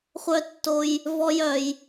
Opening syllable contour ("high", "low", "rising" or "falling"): high